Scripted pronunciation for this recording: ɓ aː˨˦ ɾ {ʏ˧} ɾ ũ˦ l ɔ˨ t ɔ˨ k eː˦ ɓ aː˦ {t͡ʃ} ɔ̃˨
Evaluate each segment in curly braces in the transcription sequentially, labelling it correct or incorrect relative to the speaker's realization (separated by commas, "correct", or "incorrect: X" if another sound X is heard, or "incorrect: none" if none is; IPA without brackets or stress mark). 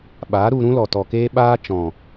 incorrect: u˧, correct